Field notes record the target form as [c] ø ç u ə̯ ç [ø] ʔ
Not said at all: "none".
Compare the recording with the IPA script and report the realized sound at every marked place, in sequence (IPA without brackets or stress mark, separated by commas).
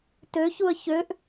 t, ø